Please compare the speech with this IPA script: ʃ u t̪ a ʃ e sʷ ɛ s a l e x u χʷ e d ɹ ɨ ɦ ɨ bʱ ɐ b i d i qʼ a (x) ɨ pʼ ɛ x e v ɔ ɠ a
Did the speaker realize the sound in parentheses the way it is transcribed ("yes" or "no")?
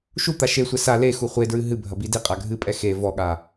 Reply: no